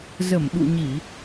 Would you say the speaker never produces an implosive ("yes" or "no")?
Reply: no